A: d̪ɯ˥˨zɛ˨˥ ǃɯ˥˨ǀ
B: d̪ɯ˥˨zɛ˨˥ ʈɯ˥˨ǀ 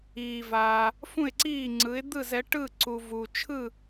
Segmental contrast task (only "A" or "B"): B